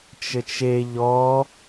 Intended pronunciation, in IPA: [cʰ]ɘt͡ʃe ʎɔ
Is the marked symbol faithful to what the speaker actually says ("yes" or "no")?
no